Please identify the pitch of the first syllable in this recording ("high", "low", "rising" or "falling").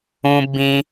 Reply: high